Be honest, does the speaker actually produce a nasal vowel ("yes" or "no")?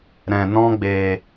yes